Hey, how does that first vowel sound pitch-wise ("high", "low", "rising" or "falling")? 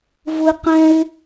high